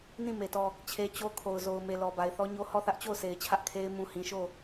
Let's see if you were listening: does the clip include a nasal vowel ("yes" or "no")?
yes